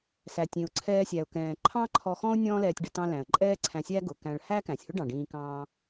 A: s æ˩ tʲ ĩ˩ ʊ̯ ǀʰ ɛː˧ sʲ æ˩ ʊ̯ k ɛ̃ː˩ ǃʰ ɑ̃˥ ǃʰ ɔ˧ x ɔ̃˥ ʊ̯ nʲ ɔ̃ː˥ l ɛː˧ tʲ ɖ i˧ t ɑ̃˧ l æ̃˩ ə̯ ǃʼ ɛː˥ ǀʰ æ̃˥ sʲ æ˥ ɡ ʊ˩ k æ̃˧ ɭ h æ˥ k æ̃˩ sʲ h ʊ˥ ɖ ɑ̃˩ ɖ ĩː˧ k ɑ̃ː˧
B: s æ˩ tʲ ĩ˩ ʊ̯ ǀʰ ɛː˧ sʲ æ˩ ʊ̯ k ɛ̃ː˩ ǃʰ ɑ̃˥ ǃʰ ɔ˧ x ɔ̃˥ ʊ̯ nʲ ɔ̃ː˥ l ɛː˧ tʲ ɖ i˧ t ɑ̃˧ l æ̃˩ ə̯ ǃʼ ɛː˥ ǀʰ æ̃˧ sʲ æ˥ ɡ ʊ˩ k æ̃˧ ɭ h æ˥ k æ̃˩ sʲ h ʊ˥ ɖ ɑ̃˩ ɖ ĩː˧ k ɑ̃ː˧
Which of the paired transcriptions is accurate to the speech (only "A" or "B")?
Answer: B